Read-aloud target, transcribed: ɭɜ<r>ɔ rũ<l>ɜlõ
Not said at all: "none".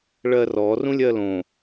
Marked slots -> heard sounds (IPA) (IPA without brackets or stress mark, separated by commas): r, lʲ